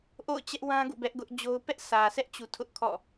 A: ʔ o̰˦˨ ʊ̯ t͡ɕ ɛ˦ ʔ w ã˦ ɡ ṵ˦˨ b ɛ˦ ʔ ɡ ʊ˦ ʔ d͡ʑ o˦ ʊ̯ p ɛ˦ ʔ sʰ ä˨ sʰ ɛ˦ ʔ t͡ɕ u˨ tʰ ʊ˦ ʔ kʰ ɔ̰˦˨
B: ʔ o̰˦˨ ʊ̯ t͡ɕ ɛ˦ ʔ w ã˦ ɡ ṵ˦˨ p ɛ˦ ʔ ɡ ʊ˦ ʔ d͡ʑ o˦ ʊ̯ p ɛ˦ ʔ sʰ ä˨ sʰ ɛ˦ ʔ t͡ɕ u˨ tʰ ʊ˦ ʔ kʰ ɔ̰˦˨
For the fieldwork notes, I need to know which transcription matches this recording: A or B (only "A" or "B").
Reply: A